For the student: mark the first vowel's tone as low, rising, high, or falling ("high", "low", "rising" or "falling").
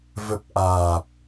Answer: low